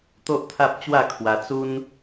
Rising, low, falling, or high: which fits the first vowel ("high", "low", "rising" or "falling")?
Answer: high